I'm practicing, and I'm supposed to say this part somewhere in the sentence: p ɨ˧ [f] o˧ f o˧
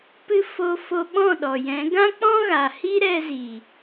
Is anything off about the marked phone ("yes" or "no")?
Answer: no